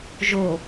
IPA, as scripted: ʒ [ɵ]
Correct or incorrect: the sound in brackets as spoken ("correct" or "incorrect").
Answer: incorrect